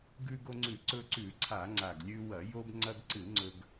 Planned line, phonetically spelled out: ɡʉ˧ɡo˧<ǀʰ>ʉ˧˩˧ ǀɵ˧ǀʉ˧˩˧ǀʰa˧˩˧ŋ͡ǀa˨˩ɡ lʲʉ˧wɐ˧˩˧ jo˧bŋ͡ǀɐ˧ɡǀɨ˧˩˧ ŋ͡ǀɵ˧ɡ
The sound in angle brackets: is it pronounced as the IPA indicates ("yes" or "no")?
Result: no